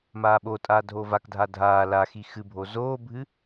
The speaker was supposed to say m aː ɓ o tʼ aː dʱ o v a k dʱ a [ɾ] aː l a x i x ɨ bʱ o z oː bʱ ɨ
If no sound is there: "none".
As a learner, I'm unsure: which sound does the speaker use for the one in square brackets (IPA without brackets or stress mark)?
dʱ